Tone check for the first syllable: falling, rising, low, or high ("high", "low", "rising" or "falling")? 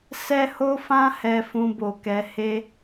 high